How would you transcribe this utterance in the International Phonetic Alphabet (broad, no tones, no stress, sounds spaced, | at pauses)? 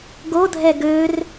ɡ o dʱ ɛ ɡ ø r